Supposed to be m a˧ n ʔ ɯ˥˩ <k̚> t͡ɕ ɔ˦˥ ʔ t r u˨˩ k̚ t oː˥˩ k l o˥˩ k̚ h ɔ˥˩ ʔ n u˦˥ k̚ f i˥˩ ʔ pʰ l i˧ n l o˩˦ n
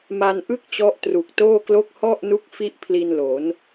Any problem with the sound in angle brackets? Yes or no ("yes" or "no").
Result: no